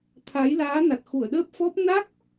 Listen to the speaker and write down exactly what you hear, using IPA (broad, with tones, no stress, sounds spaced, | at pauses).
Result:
t̪ʰ a˨˦ j l aː˨˦ n a˨˩ t̚ x u˧˩ ə̯ ɗ əː˦˥ p̚ f ɔ˦˥ p̚ n a˦˥ k̚